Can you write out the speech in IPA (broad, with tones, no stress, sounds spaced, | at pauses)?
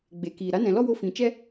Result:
ɡ͡b e˨ k iː˨ ɾ a˨˦ n ɛ̃˨ l ɔ˦ w o˧ f ĩ˨ t͡ʃ ɛ˦